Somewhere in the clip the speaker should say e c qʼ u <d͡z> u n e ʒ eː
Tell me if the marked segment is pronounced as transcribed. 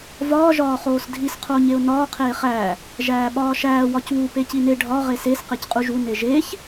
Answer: no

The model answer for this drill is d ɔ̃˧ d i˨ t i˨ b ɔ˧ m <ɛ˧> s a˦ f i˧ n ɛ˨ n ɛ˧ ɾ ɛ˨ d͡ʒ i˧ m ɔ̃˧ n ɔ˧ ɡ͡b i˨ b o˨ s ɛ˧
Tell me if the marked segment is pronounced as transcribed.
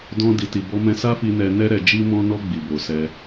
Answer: no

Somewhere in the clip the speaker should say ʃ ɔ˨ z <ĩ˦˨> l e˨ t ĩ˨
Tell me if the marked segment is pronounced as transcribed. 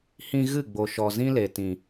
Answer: no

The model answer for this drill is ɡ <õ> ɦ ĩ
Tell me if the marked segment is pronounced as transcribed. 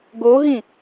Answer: no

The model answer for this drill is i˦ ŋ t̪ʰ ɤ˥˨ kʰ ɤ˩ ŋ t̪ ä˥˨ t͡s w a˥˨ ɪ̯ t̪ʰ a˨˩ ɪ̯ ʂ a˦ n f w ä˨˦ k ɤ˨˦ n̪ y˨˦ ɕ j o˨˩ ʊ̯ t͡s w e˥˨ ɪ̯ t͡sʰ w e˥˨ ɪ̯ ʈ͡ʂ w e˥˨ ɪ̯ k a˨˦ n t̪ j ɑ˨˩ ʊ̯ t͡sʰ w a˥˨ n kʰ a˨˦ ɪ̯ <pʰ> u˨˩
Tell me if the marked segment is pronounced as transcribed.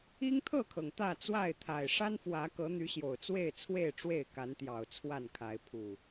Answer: yes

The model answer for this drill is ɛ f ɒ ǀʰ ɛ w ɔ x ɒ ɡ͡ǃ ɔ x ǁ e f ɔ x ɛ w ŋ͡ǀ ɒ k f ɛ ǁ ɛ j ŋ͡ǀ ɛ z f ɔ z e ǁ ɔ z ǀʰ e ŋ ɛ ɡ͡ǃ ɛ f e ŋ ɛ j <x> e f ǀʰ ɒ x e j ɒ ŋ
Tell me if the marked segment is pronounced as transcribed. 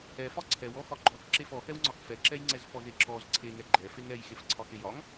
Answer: yes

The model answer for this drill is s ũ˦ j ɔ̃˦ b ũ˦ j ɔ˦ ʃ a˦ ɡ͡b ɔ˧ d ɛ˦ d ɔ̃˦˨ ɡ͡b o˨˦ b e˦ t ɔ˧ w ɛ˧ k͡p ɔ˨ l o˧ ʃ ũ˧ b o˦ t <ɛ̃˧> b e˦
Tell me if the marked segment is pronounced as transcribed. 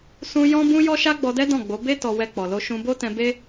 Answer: yes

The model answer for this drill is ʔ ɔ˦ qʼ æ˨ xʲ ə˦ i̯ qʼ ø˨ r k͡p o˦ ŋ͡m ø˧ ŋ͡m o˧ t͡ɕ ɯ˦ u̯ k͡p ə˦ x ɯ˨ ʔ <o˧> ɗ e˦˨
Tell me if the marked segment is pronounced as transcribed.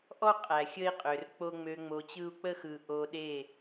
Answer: yes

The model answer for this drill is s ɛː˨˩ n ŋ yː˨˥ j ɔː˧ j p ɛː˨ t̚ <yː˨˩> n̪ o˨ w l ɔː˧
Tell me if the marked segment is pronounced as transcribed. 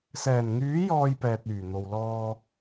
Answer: yes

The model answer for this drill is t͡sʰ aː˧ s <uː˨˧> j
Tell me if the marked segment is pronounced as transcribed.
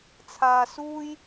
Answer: no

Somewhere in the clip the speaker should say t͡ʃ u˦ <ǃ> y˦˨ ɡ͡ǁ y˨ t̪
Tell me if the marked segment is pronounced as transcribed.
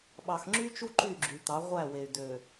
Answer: yes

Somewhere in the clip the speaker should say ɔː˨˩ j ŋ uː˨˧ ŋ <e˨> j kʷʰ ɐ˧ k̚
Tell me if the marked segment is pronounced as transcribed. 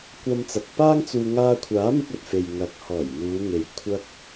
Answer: yes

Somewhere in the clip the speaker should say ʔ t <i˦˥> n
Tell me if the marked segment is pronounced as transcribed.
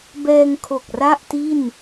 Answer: no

